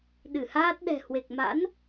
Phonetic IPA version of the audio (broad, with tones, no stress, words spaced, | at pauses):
ɗɨ˧˩haː˦˥t̚ɗɛ̤˨˩ hwe˨˩k̚ma̰˧˥n